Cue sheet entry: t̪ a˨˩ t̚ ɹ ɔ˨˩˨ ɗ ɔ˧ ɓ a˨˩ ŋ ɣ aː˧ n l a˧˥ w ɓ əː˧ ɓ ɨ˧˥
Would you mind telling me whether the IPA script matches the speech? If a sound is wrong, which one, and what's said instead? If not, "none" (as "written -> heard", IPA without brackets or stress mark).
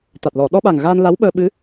ɹ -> l